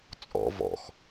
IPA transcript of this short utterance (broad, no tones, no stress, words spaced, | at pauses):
t͡sʼɔ̰ vɔ̰x